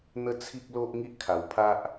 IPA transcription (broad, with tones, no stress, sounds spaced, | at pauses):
n̪ ə˦ t͡sʰ i˦ k̚ l o˦ ʔ ŋ i˦ ʔ kʰ a˧ w pʰ a˦ ʔ